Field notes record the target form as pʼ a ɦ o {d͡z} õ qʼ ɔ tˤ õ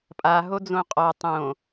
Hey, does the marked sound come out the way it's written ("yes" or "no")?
yes